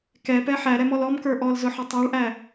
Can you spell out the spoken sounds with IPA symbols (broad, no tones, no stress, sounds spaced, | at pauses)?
k ɛ p ɛ ħ æ ɾ ɛ m ɔ l ɔ m k ə˞ ʔ ɔ l z ʊ ħ ə tˤ ə˞ ɭ ʔ æ